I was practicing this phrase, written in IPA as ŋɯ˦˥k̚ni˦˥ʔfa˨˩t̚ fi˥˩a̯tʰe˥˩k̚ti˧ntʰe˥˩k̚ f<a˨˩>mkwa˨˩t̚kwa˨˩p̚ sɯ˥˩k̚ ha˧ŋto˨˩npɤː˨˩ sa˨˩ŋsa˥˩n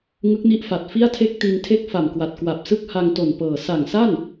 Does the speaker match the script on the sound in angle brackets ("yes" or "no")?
yes